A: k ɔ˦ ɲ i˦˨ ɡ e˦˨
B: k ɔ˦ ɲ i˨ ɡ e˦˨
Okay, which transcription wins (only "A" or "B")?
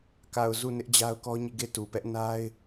A